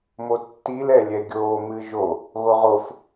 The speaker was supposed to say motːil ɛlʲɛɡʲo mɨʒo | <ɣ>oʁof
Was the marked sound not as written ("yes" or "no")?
no